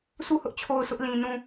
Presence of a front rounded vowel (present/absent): absent